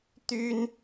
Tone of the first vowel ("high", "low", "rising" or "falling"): high